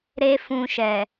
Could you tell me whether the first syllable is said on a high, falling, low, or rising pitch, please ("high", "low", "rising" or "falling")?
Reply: high